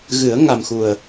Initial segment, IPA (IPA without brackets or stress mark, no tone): ɣ